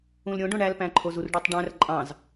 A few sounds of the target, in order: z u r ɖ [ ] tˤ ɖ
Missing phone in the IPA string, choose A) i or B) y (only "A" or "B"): B